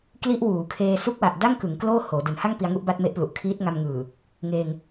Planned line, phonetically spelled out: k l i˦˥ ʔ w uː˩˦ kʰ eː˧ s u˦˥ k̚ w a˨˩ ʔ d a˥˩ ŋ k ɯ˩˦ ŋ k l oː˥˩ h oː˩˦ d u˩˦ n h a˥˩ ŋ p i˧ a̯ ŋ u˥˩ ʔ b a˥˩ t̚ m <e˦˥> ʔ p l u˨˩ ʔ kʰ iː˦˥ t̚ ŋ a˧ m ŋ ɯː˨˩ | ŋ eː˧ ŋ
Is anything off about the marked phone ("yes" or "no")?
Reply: no